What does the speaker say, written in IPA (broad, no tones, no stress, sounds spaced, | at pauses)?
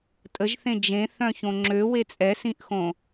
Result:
tʼ ə ʒ θ ẽ d͡ʒ ẽ θ œ̃ ç õ ŋ͡ǁ ø w e t͡sʼ ɛ s ĩ ʔ x õ